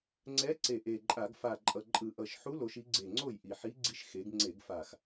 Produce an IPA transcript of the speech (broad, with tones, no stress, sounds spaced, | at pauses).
ŋ͡ǀ ɛ˧˥ ǀ e˨˩ ʔ e˨˩ ǃʼ a˧˩˧ ɡ f a˨˩ ǃʼ ʌ˨˩ ǃʼ ɯ˧˩˧ ʔ ʌ˨˩ ʃ ħ u˧˥ l o˩˧ ʃ i˩˧ ɡ͡ǀ e˨˩ ŋ͡ǀ o˥˩ j ʔ i˨˩ ħ i˧˥ ɡ͡ǀ i˧˥ ʃ x e˩˧ ɡ ŋ͡ǀ e˧˩˧ ɡ f a˨˩ x